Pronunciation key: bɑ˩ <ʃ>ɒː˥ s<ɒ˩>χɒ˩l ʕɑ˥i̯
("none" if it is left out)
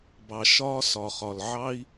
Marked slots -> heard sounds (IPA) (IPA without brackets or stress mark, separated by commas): ʃ, ɒ˩